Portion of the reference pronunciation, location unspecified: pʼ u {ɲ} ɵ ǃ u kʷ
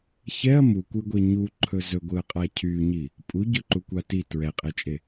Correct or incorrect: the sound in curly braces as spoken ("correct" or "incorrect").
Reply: incorrect